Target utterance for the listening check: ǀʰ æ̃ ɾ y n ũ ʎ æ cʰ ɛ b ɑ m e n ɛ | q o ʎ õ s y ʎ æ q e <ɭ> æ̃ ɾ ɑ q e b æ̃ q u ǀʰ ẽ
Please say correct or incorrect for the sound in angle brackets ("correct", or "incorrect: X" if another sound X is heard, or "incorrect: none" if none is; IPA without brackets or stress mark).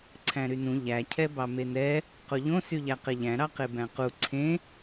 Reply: incorrect: ʎ